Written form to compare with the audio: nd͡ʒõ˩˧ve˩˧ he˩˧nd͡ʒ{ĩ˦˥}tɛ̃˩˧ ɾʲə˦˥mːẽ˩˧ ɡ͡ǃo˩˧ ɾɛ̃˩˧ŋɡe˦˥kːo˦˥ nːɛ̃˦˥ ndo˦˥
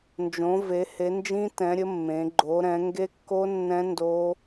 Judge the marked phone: correct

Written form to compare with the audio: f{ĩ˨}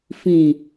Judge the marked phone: correct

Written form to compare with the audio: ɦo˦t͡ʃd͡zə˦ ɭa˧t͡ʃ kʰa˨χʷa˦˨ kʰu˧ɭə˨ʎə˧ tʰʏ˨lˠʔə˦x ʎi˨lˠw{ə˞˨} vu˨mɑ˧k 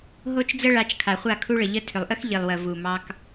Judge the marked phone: incorrect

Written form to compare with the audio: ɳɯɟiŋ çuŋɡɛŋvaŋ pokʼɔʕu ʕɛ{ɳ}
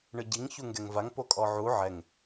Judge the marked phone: incorrect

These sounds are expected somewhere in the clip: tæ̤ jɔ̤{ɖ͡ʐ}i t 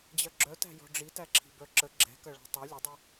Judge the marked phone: correct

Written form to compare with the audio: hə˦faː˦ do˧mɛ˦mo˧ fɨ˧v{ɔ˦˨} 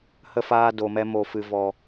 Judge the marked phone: incorrect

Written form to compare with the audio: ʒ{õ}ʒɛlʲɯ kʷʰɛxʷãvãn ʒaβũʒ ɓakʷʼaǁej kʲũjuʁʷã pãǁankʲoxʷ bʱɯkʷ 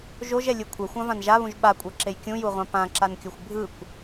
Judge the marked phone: incorrect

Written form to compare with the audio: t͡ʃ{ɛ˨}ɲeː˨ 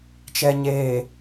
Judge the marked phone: correct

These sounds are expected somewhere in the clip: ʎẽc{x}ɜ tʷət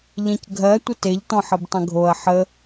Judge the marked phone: incorrect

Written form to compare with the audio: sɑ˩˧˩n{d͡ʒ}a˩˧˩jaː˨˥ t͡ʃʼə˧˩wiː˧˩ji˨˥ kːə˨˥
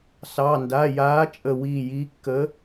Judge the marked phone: incorrect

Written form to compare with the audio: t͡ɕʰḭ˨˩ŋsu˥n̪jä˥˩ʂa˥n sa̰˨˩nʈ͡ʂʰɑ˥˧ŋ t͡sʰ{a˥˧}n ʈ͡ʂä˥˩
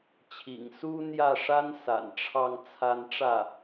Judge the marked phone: correct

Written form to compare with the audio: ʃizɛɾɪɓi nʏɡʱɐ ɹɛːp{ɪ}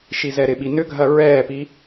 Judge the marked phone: incorrect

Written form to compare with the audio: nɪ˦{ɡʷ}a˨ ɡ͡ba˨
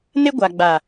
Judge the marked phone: correct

